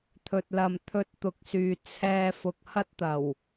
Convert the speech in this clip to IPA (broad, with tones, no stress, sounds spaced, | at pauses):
t̪ʰ ɵ˨ t̚ l ɐ˨ m t̪ʰ ɵ˧ t̚ t̪ ʊ˨˥ k̚ s yː˨ t͡sʰ ɛː˧ f ʊ˨ k̚ h ɐ˥ t̚ t̪ ɐ˨˩ w